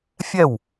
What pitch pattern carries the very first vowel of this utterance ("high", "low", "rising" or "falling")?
falling